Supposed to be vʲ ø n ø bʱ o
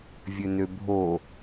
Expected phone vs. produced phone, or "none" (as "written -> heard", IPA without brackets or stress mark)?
none